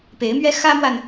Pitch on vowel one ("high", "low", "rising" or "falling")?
rising